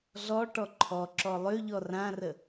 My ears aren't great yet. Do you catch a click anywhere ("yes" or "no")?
yes